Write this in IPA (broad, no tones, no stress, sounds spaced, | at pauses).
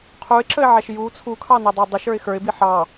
qʰ u ɪ̯ ǁ ə ɪ̯ ʕ æ ʃ j u t͡sʰ u kʰ ɑ n ɛ dˤ ə ɪ̯ dˤ ə ʃ ə˞ ɪ̯ x ə˞ ɪ̯ b i ħ ɑ